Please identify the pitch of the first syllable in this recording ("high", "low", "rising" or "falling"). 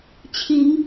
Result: rising